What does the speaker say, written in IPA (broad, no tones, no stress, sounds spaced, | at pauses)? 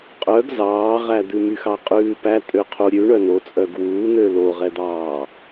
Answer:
qʼ œ ɡ z ɑː ʁ æ d̪ ʉ m y x ɑ qʼ ʉː p æ tʼ ø qʰ u ɾʲ ʉ ɳ œ n o t͡sʼ œ ɡ w uː n̪ ø l o ʁ ɛ d̪ ɑː